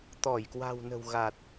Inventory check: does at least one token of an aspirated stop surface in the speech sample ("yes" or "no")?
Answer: no